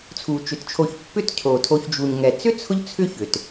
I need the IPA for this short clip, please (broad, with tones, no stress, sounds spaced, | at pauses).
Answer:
t͡sʰ u˩ t͡ʃ ʏ˩ t t͡ʃʰ o˨ ç pː ʏ˦ t cʰ o˩ tʰ o˨ ç d͡ʒ u˩ ɲ ŋ ɛ˩ t͡s ʏ˥ t͡sʰ ʊ˦ ʎ t͡sʰ ʏ˦ ç ʏ˩ t